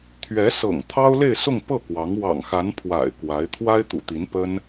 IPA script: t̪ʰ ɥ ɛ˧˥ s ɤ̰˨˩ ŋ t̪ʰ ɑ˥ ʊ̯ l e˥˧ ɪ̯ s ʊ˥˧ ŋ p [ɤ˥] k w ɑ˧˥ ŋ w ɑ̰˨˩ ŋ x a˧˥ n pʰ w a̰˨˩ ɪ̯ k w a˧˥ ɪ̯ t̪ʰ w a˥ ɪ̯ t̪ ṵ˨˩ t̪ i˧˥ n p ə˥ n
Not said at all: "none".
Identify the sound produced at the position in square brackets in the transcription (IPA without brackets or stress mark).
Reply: ɤ˥˩